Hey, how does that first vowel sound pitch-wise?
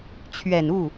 low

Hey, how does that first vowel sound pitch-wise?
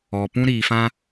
low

